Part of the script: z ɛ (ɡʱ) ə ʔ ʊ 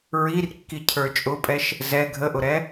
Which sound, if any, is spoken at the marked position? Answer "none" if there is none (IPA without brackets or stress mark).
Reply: ɡʱ